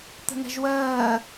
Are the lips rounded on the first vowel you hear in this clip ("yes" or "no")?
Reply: no